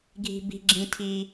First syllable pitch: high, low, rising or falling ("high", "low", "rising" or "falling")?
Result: high